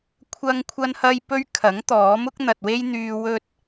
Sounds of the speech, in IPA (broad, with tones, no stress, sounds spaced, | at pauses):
kʷʰ ɐ˥ ŋ kʷʰ ɐ˥ n h ɐ˥ j p ɵ˥ ɥ kʰ ɐ˨˥ ŋ t̪ ɔː˨˥ m ʊ˥ k̚ n̪ ɐ˨ t̚ w e˥ j n̪ yː˧ w ɵ˥ t̚